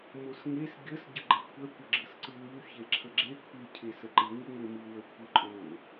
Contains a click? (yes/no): yes